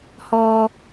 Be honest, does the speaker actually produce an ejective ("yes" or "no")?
no